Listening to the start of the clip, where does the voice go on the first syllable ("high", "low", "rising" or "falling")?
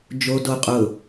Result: low